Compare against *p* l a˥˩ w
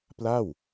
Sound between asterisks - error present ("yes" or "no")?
no